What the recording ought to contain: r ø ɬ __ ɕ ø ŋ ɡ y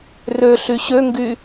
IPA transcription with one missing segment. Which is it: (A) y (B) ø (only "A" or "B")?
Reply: A